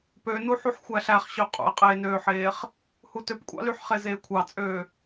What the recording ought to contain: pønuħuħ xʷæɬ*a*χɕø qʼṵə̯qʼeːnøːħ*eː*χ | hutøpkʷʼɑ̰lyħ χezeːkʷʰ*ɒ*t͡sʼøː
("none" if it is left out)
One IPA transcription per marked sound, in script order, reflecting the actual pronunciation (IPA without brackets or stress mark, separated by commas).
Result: æ, eː, ɑ